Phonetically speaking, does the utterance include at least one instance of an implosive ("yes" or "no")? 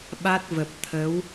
yes